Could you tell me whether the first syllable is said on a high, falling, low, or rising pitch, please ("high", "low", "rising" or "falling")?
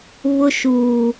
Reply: high